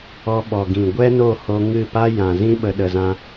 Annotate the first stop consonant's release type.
implosive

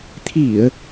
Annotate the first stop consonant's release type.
aspirated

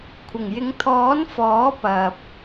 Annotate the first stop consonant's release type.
aspirated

